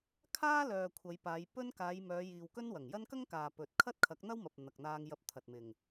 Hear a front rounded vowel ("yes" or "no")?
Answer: yes